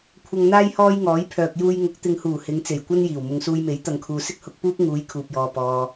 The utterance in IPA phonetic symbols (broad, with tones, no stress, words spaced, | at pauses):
kʷʰɐ˧ŋn̪aː˥jhɔː˥jŋɔː˨˥j pʰœː˨k̚juː˧jŋʊ˨˥k̚ t̪ɪ˨ŋhuː˨˩ hɪ˨˧ŋ t͡se˨˩jkʷɐ˥njiː˨˩w mʊ˨ŋsuː˧jme˨˥j t̪ɐ˨ŋkʰuː˨sɪ˥k̚ hʊ˧k̚puː˥p̚ ŋuː˨˧jkʰuː˨p̚jɔː˨ pɔː˧